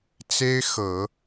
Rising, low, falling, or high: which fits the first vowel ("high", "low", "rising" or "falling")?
high